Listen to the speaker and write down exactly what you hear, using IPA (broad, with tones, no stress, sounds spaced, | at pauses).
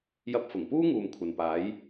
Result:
j ɐ˧ p̚ f ʊ˨˩ ŋ p uː˥ ŋ uː˨ m kʷʰ ɐ˨ n p aː˨˥ j